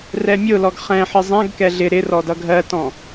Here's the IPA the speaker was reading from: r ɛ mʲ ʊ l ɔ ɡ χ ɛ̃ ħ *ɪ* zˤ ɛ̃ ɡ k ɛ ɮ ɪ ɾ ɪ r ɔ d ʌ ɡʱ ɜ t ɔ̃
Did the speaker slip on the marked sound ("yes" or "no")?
no